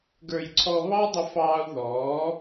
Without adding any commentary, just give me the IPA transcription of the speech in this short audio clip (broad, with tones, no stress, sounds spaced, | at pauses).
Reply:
ɡ ə˞˨ j ǀʰ ɔ˧ β ɑ˦ dˤ ə˧ f ɑː˧ u̯ ð ɔː˨˦